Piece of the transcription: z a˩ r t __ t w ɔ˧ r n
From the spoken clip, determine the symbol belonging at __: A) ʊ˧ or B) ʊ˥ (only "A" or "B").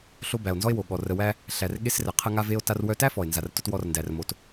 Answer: A